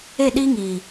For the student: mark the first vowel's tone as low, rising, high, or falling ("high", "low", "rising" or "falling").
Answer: falling